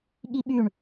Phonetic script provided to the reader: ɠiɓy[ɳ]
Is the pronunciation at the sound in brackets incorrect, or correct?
correct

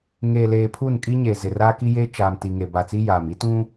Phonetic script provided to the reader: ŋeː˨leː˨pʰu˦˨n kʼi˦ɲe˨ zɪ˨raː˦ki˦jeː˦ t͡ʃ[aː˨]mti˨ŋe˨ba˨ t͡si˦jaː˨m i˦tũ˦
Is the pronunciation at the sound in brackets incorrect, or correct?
correct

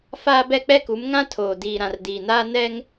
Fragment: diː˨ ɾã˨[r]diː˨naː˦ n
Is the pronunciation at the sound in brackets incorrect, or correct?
correct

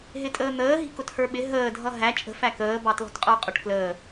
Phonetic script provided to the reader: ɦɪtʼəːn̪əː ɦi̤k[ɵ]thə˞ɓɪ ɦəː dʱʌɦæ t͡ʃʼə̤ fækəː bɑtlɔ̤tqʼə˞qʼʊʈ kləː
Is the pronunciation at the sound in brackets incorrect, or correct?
incorrect: ʊ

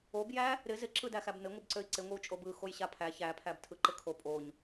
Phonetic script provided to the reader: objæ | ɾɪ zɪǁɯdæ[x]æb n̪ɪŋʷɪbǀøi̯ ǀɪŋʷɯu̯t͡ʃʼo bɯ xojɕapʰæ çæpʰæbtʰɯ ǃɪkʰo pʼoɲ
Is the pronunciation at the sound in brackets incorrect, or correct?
correct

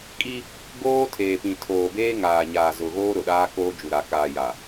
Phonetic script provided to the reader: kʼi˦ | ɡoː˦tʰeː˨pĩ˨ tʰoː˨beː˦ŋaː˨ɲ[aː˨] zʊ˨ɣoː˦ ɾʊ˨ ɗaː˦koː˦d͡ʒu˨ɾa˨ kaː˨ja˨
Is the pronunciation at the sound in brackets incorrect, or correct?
correct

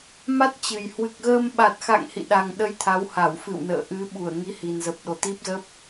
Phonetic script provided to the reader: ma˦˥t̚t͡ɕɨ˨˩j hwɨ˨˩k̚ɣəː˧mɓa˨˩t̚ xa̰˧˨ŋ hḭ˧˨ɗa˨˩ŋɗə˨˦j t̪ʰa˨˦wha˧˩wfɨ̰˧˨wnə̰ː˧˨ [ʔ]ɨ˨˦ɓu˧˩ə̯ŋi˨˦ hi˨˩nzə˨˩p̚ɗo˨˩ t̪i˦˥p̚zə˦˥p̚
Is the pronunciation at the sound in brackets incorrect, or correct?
correct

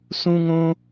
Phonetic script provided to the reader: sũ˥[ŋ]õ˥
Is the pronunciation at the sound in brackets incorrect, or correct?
correct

